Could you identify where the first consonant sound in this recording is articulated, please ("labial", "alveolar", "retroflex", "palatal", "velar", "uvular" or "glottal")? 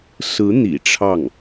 alveolar